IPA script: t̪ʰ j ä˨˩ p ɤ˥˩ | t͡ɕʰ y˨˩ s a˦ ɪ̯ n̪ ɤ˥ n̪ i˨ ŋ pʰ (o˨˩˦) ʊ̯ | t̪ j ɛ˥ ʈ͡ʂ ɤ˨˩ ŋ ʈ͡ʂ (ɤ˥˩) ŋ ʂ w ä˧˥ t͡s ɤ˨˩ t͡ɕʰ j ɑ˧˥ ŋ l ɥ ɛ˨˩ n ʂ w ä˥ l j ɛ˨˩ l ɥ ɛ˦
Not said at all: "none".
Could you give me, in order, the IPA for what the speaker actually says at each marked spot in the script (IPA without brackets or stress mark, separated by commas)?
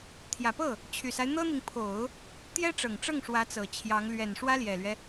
o˨˩˦, ɤ˥˩